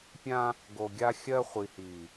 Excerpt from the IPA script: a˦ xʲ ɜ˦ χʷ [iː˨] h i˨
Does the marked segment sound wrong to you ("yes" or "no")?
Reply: yes